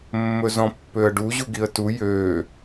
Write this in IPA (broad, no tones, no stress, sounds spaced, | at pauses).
mː ɵ z ɔ̃ pː ø ə̯ ɖ u ʑ u ɡ i ə̯ t u j ø